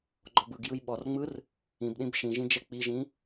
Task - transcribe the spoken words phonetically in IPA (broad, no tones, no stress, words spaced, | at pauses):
ɡ͡ǃɔbɯɡjɯj ɓɔrŋ͡mɯr | ĩbɗĩb ʃĩʒĩ d͡ʒɛk͡piʒĩ